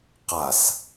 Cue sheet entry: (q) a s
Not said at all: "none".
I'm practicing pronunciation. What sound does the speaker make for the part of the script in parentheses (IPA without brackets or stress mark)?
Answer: q